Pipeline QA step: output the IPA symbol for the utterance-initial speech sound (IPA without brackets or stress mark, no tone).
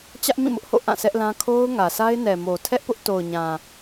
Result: t͡ɕ